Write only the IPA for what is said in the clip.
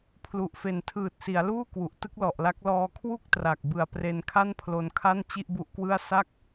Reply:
pʰ l u˨˩ ʔ f e˨˩ n tʰ ɯː˨˩ t̚ s i˩˦ a̯ l uː˥˩ k w u˨˩ ʔ t ɯ˥˩ k̚ l ɔ˨˩ ʔ l a˦˥ k̚ l ɔː˧ kʰ w u˥˩ k̚ t r a˨˩ k̚ b ɯ˨˩ a̯ p r e˧ n kʰ a˥˩ n pʰ l o˧ n kʰ a˥˩ n t͡ɕ i˥˩ ʔ b u˦˥ ʔ k w ɯ˥˩ a̯ s a˥˩ k̚

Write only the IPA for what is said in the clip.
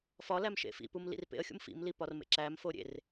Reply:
f ɒ l æ m ʃ ḛ f ḭ p u m l ḭ r p ḛ ə̯ xʲ ṵ m f ḭ m l i p ɒ r m ḛ ǁ æ m f o ɾʲ ḛ r

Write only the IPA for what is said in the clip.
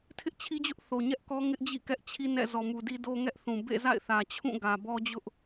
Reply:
tʰ ɪ˦ ʔ t͡ɕʰ i˦ d͡ʑ ʊ˦ ʔ θ o˨ ɲ ɛ˦ ʔ k ɔ˦ ŋ ɪ˦ ʔ d͡ʑ ḭ˦˨ k ɛ˦ ʔ t͡ɕʰ i˦ n ɛ̰˦˨ z ɔ˨ m u˨ d i˦ d o˦ ŋ ɛ˦ ʔ θ ũ˨ b ḛ˦˨ z a̰˦˨ ɪ̯ θ ä˨ t͡ɕʰ ũ˦˨ ɡ ä˨ b ɔ˦ d͡ʑ ʊ˦ ʔ

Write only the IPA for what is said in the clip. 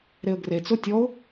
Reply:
ɾ e ə̯ ɡ r e t͡s ʊ tʲ ɔ ʊ̯

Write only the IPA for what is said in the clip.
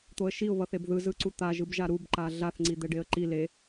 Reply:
t̪ o ə̯ ʃ i ʊ̯ β ʌ θ e b ð ɯ z ɯ ǀ u t̪ a ʒ ɯ b ʒ a ɾ u b ǃ a ɮ a θ ŋ͡ǀ i d̪ ɛ ɖ e ə̯ ǃ i l e

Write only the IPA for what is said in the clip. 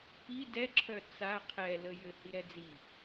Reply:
p i d ɛ ǁʰ œ t͡s a qʰ ɛ l ə j ɘ h i ɾ ɛ d͡z i

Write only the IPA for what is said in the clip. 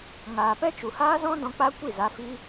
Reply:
ŋ aː˨ p ɛ˦ t͡ʃ u˨ h aː˦ z ɔ̃˦ d ɔ̃˧ k͡p a˦ kʷ i˦˨ z a˨˦ f i˧

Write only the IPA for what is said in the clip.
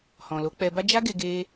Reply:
h ɔ̃˨ l o˨˦ k͡p ɛ˧ b a˦ d͡ʒ a˦ ɡ e˧ ɡ e˦

